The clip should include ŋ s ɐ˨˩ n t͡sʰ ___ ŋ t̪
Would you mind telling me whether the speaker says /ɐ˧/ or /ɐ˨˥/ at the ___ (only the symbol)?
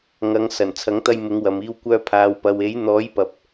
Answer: ɐ˨˥